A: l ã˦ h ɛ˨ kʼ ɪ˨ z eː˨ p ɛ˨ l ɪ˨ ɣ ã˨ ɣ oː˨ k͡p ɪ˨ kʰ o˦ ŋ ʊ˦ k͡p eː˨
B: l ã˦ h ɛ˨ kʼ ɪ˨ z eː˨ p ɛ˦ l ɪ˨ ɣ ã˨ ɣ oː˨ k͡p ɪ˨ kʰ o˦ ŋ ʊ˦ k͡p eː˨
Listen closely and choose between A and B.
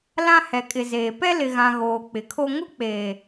B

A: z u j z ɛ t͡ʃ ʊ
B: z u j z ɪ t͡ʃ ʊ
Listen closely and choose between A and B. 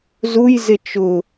B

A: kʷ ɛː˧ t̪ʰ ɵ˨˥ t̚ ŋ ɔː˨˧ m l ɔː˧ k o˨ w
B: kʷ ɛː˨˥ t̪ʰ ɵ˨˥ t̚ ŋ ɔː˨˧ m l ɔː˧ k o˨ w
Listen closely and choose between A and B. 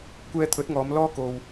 A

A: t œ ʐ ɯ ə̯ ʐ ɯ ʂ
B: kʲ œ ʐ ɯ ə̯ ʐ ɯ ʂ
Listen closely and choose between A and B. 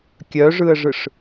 B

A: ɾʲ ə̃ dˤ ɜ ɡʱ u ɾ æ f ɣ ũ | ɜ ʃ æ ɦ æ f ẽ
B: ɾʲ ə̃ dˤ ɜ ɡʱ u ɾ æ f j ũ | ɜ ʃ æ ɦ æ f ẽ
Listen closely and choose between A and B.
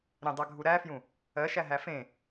B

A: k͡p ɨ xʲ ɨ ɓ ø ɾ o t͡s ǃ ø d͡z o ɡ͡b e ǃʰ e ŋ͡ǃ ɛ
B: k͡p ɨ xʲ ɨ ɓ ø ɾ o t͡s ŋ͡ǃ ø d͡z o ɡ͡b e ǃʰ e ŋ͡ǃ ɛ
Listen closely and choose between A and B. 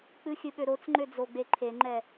B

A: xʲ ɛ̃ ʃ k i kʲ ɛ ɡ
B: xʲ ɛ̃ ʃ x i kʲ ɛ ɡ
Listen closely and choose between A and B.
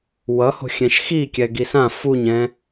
B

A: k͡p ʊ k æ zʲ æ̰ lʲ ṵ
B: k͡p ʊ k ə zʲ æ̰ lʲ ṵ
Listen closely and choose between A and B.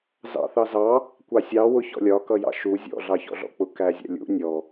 A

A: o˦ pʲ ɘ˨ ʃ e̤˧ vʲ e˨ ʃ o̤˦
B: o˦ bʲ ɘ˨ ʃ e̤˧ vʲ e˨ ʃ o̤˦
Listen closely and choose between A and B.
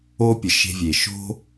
A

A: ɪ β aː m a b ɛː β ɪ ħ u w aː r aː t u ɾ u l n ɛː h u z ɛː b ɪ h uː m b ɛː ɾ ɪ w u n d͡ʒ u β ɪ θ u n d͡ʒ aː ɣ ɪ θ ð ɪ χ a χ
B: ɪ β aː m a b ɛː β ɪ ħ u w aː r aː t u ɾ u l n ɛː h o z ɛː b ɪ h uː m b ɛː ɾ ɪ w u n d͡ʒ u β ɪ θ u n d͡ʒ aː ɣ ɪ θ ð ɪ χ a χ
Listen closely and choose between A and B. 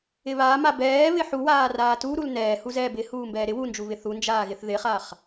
A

